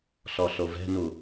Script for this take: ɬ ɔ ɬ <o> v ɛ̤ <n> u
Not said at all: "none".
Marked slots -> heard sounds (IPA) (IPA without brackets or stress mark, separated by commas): o, n